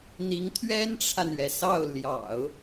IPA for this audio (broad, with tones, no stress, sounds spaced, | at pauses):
n̪ i˧˥ ŋ t̪ʰ ɥ ɛ˥ n ʈ͡ʂʰ a˨ n ɥ ɛ˩ s ɑ˥˩ ʊ̯ l j ɑ̰˨˩˦ ʊ̯